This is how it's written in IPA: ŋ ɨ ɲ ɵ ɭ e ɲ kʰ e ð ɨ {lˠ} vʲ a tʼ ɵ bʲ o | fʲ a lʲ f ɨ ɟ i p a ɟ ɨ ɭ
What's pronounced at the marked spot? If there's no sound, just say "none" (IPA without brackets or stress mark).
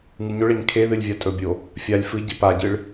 lʲ